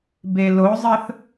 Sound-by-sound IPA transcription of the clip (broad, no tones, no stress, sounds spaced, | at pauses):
b e l o zˤ ə θ